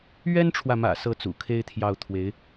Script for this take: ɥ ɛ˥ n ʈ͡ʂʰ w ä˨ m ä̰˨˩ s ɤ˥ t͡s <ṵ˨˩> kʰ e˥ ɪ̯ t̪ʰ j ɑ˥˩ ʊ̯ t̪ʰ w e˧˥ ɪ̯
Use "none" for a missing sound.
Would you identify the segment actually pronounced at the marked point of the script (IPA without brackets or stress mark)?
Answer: ṵ˨˩